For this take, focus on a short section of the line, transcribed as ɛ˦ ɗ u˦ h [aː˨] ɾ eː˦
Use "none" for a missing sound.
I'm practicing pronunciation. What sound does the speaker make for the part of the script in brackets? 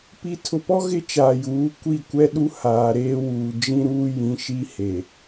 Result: aː˨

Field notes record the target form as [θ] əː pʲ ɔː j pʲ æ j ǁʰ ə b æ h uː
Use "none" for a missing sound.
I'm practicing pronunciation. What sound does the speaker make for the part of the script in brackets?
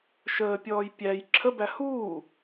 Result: ʃ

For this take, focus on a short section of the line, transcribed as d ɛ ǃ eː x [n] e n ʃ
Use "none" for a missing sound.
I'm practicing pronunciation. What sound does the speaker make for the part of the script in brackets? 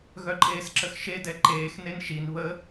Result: n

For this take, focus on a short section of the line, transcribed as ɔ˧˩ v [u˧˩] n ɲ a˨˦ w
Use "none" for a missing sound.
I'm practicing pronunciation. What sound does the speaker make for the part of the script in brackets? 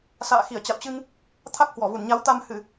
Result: u˧˩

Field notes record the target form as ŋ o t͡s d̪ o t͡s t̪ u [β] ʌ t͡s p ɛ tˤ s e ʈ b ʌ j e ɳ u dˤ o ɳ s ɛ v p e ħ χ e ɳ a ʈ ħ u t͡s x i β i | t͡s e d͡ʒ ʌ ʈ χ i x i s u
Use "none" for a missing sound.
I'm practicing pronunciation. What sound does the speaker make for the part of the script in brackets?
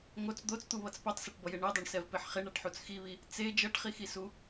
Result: β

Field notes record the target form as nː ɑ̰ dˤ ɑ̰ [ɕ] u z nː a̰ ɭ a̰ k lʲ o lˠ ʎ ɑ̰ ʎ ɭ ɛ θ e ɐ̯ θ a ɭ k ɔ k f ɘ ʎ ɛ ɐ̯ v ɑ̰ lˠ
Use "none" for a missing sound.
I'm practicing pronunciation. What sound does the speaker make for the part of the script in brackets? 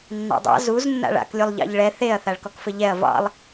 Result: z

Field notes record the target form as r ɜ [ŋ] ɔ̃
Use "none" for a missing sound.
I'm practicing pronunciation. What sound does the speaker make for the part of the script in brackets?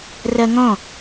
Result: ŋ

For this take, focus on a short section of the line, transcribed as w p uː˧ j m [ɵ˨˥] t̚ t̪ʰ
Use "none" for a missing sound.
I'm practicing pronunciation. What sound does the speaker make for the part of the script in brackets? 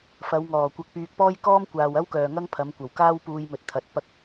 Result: ɵ˨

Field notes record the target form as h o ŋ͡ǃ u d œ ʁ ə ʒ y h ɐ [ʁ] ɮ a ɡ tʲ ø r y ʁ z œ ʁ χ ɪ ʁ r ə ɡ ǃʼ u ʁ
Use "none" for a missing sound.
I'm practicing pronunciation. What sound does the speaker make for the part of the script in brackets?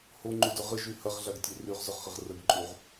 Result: ʁ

